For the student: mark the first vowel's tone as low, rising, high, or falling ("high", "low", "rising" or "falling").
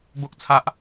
high